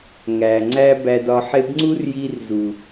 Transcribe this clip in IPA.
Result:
ŋæ˨ ŋ͡ǀæ˦bæ˧dɒ˧ ħe˧bŋ͡ǀu˦rji˧rzu˨

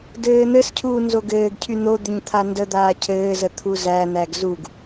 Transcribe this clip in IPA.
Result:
dɘːn̪ɘscʰuː nzoɡɘːɡcʰy n̪o d̪ʏɲt̪ʰandəd̪aː cʰɘːzə t̪ʰuzæn̪æɡ zuɡ

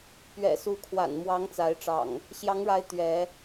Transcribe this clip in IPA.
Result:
pɥɛ̰˨˩su˨˦kʰwa̰˨˩nmwɑ˨˦ŋ t͡sa˨˦ɪ̯ʈ͡ʂɑ̰˨˩ŋ | ɕjɑ˨˦ŋɻa˨˦ɪ̯ t̪ɥɛ˨˦

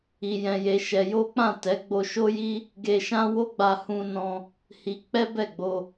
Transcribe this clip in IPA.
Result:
i˧jɛ̃˧je˧ʃɛ˧ jo˦k͡pã˦˨ tɛ˨˦ ɡ͡bo˧ʃo˦ji˦ | ɡe˧ʃã˦wo˦ɡ͡ba˧ hũ˧nɔ̃˧ | hi˧ k͡pɛ˦bɛ˦˨ɡ͡bo˧

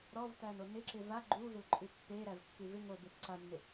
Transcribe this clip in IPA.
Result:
ɾɔvtæno nɪǁɪ va ɡ͡ǃuvɪlǃʼʉ pːeɾævkːʉ vɪ ŋobet ǀanːɪ

